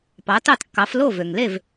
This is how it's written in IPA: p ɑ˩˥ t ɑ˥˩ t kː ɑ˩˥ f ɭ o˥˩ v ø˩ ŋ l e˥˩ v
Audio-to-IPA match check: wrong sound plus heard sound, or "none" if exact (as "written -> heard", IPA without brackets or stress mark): ɭ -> l